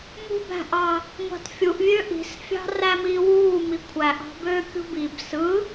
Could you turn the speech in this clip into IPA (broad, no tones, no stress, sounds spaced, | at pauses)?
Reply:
m ṳ b æ̤ ʔ ɑ | ŋʷ ɑ̤ t fʲ u ʔ vʲ ø ʔ i̤ s fʲ ɑ̤ r æ m iː w uː m i kʷʰ æ ʔ ɑ̤ b øː kʲ ṳ b i b s ɯ